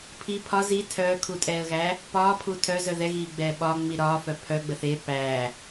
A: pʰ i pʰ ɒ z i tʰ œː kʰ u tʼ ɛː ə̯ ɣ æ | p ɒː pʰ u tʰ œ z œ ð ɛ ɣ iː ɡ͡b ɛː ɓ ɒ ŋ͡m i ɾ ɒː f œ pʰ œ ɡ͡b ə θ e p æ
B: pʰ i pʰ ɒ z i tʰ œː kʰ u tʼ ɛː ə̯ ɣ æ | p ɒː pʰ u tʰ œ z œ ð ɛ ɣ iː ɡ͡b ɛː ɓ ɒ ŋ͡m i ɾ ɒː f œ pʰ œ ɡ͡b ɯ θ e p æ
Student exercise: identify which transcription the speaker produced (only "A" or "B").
A